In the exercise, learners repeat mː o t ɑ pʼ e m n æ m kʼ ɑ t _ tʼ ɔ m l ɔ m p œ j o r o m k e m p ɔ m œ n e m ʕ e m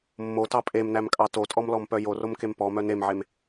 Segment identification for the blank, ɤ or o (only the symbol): o